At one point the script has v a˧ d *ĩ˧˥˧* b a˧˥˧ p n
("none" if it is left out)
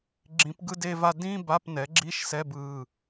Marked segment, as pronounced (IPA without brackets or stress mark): ĩ˧˥˧